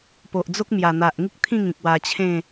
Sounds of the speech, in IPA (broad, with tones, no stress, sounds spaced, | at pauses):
p o˨ ʔ d͡z o˦ k̚ m j a˨˩ n̪ a˨ ʔ ŋ i˦ k̚ t̪ʰ ĩ˥˧ ŋ ĩ˨ k̚ w a˧ t͡ɕʰ ẽ˥˧